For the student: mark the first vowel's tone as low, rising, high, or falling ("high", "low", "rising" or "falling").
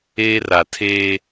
high